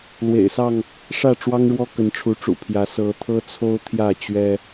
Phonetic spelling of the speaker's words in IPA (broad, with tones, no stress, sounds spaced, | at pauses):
l w ḛ˨˩ ɪ̯ s ɑ˥˨ ŋ | ʂ ä˥˨ ʈ͡ʂ w ɑ˦ ŋ ɻ w ɔ˦ k ə˨˦ n ʈ͡ʂʰ u˨˦ ʈ͡ʂ ṵ˨˩ pʰ j ä˨˦ s ɤ˨˦ t̪ʰ ɤ˦ t͡sʰ o˦ ʊ̯ t̪ʰ j ä˥˨ t͡ɕ ɥ ɛ˦